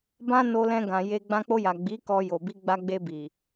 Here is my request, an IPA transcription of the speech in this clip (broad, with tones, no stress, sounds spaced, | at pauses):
b ã˦ n o˧ l ɛ̃˧ ɡ ã˨ j e˧ ɡ͡b ã˧ k͡p o˧ j a˨ ɡ͡b i˨˦ k ɔ˧ j o˨ b i˧ ɡ͡b a˧ ɡ͡b e˧ b i˨